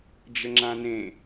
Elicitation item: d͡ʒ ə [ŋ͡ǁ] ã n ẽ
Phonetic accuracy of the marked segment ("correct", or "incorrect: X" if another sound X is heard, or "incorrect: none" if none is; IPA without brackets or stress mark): correct